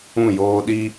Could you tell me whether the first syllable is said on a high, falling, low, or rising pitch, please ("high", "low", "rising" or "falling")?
falling